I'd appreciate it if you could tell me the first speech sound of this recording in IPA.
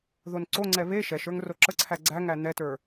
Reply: ð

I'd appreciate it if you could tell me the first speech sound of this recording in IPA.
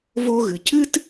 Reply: v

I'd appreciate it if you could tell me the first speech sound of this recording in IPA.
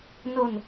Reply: n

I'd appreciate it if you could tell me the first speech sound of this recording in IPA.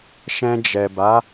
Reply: ʃ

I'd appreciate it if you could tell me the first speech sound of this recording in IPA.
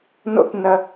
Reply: n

